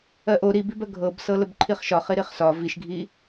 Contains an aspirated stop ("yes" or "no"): yes